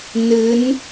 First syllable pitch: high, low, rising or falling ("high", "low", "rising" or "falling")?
rising